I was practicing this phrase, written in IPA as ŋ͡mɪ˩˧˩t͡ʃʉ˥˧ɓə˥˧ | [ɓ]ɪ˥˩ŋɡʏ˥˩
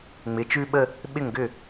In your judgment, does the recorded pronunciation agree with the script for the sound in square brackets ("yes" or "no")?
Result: yes